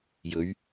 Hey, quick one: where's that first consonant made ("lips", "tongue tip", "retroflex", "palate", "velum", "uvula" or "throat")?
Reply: palate